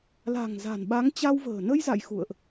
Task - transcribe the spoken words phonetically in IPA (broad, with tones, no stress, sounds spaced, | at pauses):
l a̤˨˩ ŋ z a̤˨˩ n ɓ a˨˦ ŋ t͡ɕ a˧ w v ə̤ː˨˩ n ə˧ j z a̰˧˨ j x ṵ˧˨ ə̯ ʔ